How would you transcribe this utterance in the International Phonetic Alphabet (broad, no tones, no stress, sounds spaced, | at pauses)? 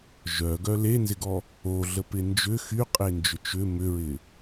ʒ œ ɡ œ l e n z ɪ ɡ ɔ | o ɮ ə p ɪ n d͡ʒ ʏ x y qʼ e n d͡ʒ ʏ t͡ʃ ʏ m ʏ ɹ ɪ